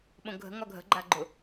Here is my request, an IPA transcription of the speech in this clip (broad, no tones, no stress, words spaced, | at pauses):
ɓõɡʱə̤ ŋɒɡʱə̤ ɡ͡ǃaɡ͡ǃʊ